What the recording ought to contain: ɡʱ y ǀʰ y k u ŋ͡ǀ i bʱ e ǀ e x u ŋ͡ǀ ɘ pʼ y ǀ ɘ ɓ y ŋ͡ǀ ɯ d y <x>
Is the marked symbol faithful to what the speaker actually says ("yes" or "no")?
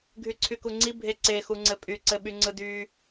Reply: no